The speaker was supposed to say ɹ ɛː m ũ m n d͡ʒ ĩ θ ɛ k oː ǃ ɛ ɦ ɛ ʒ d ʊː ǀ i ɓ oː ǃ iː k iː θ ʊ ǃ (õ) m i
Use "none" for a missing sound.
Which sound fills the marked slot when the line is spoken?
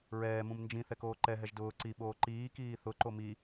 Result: o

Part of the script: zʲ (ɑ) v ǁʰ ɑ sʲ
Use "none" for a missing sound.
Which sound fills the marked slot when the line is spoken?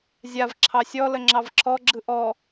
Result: a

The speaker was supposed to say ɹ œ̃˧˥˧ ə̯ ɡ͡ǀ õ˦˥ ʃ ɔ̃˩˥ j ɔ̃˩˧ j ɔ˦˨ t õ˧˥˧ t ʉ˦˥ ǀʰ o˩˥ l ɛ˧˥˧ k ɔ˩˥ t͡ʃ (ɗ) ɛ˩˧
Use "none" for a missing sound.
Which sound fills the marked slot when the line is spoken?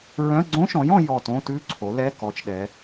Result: ɗ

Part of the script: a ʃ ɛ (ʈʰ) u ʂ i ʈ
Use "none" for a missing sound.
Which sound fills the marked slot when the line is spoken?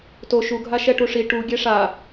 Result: ʈ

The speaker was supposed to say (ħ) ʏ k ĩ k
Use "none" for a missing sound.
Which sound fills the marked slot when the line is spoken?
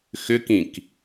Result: x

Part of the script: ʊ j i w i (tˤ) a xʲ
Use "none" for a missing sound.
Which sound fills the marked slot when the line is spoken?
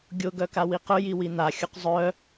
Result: n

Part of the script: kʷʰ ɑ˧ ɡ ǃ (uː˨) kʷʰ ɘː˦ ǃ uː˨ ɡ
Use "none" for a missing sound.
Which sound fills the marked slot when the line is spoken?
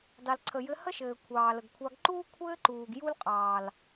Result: uː˦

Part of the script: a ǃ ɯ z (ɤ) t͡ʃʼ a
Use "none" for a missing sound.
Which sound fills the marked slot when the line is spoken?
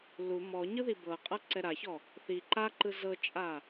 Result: ɤ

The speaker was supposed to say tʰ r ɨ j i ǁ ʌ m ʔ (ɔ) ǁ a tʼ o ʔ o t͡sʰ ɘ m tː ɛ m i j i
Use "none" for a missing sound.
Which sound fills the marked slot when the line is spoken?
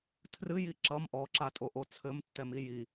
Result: ɔ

